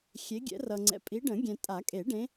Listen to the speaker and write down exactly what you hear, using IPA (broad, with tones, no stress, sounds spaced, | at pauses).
xʲ e˨˦ ɡʲ ɛ̰˨˩˦ r ʌ˨ ŋ͡ǀ ɛ̰˨ pʼ i˨˦ ɖ ə̃˨˩˦ ɡʲ ɛ̃˨ tʼ a˨˩˦ kʼ e˨˩˦ ɖ ẽ˨˦